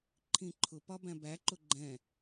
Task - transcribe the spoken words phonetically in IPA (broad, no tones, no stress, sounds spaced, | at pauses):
ǃʰ ĩ ǃʰ ʊ p ɒ b æ̃ b æ ǃ ʊ ɡ͡ǃ ɛ̃